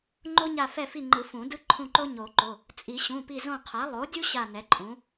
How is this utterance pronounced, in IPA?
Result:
ŋ͡ǃo˥ɲa˦˨ fɛ˦˨fi˦˨ŋ͡ǃɯ˨˩˦ fũ˨˩˦dɯ˥ ǃʰũ˦˨ǃo˥ɲo˨˩˦ǃo˩˧˩ | t͡sʼi˨˩˦ɕũ˩˧˩pi˦˨ zõ˦˨qʰa˩˥ lˠo˩˥dʲu˥ ɕa˦˨nɛ˩˥ǃʼũ˩˥

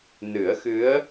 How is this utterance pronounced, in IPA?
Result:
nɨ˨˩˦ə̯xɨ˧˥ə̯

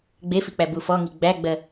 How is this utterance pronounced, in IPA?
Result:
ɡ͡befik͡pæbu fɔŋi ɡ͡bæɡ͡bɜ

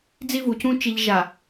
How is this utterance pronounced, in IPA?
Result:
d͡zi˦vu˨cũ˦ t͡ʃi˨ʎʒa˨

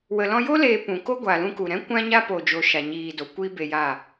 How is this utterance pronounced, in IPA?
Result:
wə˨lɔ̃˧jo˦ leː˧pũ˨ko˦ ɡʷa˨lũ˧ku˨ɾɛ̃˦ kʷã˧ɲa˧ po˨d͡ʒo˨ ʃa˨ɲiː˨do˨ kʷiː˦be˧ja˦˨

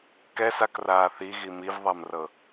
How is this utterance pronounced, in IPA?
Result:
kɛsakraː θiɣi mivðˤamrɤ

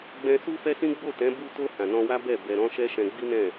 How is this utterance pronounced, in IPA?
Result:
ɡ͡bɛ̃˧su˦fɛ˦sĩ˦ ɡ͡bo˦˨tɛ̃˨˦ bu˧to˧ hã˨nɔ̃˧wa˦bɛ˦˨ bɛ˧ɾɔ̃˦ ʃɛ˦ʃɛ̃˧ɡ͡bi˦nɛ̃˦˨

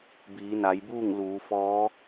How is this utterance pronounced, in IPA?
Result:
biː˩˧na˩˧jbuː˥˨ŋ luː˩˧fɔː˧˥

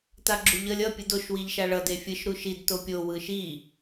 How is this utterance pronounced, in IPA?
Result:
taɡ͡ǁuʎʌlʲ ʌ pʲɯdoʃ wiʎʃaɭʌ defʲɯʃ ɾuʃid topʲo wɯʃi

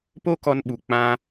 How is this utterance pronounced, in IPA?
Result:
po˦kɔ˧nɓu˨ k͡pã˧

